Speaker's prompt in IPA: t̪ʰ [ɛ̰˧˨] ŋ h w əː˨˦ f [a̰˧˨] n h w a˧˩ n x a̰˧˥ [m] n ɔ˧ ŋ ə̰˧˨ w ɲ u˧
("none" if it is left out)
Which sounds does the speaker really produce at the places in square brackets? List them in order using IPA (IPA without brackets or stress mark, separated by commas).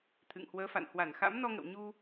ɨ̰˧˨, a̰˧˨, m